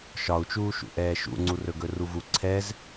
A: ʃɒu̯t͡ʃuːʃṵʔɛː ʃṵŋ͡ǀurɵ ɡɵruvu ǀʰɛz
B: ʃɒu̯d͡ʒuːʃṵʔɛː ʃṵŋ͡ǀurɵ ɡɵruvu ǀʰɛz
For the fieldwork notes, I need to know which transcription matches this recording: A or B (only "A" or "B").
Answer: A